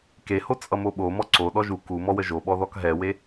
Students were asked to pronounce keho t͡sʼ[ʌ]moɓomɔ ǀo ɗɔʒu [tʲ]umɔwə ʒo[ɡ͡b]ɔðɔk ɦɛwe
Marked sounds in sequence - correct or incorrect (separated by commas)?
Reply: correct, incorrect, incorrect